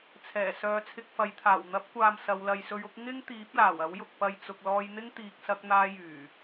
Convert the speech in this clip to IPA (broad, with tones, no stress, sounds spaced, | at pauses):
t͡sʰ ɛː˨˩ s œː˨˧ t͡sʰ ɪ˧ k̚ f ɐ˨˧ j t̪ʰ aː˨˩ w n̪ ɐ˨˥ p̚ kʷ aː˨ m s ɐ˨˧ w l ɐ˨˧ j s ɵ˧ ɥ ʊ˥ k̚ ŋ ɪ˥ ŋ t̪ iː˨˥ p̚ l aː˨˩ w ɐ˨˥ w j ʊ˨ k̚ p ɐ˨ j t͡s ʊ˨ k̚ l ɔː˧ j n̪ ɪ˥ ŋ t̪ iː˨ k̚ s ɐ˧ k̚ n̪ aː˧ j yː˨˩